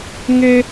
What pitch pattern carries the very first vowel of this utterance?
high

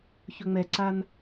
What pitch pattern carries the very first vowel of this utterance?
high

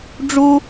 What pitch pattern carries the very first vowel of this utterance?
high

